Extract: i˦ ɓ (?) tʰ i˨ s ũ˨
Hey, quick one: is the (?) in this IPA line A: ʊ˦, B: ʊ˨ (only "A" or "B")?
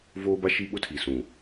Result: A